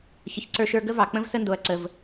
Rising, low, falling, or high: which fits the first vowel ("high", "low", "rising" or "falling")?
low